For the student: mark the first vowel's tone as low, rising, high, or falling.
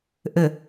low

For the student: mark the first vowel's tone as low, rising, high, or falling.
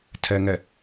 low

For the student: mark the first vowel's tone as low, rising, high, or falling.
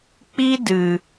high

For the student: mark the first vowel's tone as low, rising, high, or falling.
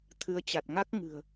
rising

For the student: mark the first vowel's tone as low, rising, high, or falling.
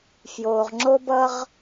low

